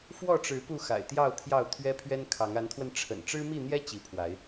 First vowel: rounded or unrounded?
rounded